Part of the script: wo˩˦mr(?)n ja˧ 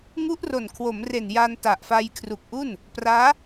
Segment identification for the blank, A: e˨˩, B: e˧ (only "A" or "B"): A